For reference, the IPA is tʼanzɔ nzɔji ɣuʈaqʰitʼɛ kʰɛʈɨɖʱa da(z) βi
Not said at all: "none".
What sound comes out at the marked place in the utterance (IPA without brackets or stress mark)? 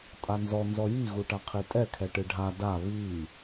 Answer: none